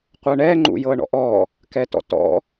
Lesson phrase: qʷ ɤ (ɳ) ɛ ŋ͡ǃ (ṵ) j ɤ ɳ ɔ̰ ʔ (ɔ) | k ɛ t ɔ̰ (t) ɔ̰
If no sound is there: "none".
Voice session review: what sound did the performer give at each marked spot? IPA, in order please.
ɳ, ṵ, ɔ, t

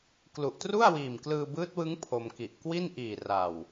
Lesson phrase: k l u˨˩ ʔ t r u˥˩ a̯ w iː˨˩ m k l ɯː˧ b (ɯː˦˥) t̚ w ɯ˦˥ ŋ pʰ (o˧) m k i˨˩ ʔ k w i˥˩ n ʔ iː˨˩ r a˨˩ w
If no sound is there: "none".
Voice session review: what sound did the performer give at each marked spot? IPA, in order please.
ɯː˦˥, o˧

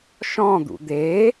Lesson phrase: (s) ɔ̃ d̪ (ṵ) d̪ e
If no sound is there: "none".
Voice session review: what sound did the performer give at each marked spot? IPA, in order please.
ʃ, ṵ

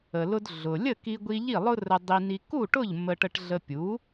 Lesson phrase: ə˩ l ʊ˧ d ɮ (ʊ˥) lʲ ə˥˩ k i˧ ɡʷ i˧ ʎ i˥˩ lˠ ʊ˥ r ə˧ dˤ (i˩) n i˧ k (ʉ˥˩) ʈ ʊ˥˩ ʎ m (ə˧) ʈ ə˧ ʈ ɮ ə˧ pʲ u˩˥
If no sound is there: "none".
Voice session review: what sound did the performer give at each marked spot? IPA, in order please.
ʊ˩, i˧, u˥˩, ə˧

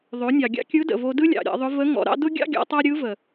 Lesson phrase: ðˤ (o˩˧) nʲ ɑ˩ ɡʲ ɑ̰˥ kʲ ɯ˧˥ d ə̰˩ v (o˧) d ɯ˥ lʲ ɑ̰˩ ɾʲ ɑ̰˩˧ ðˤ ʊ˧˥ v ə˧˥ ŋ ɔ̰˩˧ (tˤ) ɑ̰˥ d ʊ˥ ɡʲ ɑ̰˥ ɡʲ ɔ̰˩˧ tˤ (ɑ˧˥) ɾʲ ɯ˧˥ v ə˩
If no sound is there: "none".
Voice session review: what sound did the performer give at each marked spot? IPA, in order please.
o˩˧, o˧, ɾ, ɑ˥

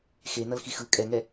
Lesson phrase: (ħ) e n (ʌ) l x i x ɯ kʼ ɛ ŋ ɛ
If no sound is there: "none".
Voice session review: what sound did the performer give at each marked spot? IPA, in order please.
x, ʌ

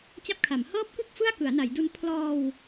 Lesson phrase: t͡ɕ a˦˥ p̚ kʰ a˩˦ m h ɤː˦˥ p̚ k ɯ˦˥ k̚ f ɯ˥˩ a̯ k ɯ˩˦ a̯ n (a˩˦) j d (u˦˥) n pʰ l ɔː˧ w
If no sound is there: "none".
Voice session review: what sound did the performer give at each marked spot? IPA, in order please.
a˩˦, u˦˥

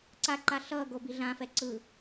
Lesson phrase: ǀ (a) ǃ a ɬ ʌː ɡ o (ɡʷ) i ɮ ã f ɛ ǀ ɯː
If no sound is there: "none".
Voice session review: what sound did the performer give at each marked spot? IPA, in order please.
a, b

